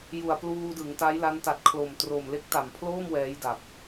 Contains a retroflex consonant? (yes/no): no